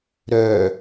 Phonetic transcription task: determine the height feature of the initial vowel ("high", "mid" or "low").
mid